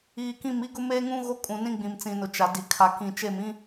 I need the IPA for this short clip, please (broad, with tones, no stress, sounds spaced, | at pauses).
iː˨ k ĩ˦˨ m i˦ ɡ ʊ˦ m eː˦ ŋ ũ˦ ɣ o˦ kʼ ũ˨ n ĩ˦ ɡ͡b ĩ˨ m t͡s ĩ˨ n ʊ˨ t͡ʃ a˨ d i˨ kʰ a˨ k ĩ˨ t͡ʃ e˦˨ m ĩ˦